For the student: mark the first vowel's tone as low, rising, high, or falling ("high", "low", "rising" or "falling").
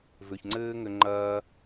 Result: low